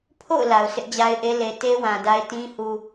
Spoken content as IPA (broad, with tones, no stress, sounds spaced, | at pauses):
pʰ o̰˦˨ ʊ̯ l a˨ ʊ̯ s ɪ˦ ʔ d͡ʑ a˦ ɪ̯ ʔ e˦ l e˨ t e˦ w ã˨ d a˦ ɪ̯ t ĩ˦ h u˨